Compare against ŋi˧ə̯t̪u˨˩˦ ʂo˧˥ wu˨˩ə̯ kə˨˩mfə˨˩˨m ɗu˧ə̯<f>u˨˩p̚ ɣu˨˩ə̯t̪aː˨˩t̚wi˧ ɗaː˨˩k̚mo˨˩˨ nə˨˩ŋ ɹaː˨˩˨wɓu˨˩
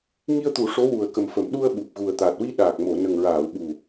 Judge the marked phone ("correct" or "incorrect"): incorrect